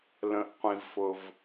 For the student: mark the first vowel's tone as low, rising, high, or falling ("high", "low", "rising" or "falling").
low